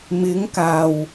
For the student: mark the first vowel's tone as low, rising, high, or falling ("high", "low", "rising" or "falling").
rising